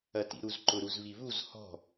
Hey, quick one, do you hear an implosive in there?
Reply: no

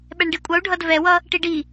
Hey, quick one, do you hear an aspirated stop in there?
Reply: no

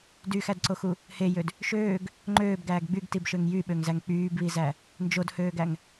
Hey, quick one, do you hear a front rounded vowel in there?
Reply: yes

